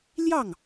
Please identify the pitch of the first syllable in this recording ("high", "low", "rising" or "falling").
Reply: falling